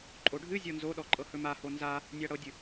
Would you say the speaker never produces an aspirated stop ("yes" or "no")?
yes